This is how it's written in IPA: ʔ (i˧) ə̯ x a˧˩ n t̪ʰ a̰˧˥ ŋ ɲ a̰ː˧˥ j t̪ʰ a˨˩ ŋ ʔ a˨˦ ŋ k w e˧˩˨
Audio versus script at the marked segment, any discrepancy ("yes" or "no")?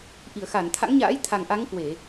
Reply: yes